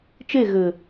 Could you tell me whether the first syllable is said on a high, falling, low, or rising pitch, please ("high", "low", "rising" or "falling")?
falling